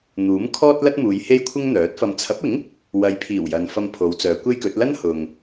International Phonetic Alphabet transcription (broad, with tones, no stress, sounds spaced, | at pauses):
n̪ uː˨˥ m kʰ ɔː˥ t̚ l ɐ˥ t̚ m uː˨˧ j h e˥ j kʷʰ ɪ˥ ŋ n̪ œː˨˥ t̚ f ɐ˧ m t͡sʰ ɐ˨˥ p̚ ɪ˨˥ ŋ | w ɐ˨˧ j pʰ iː˨˩ w j ɐ˨ n f ɐ˧ m pʰ o˨˧ w t͡s œː˨˧ kʷ e˥ j k ɵ˨˥ t̚ l ɐ˥ n h ʊ˨ ŋ